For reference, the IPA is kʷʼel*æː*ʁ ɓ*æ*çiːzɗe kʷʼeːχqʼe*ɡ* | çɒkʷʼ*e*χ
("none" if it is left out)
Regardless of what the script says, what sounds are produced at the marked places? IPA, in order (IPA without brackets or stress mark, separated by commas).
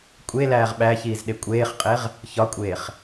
æː, æ, ʁ, eː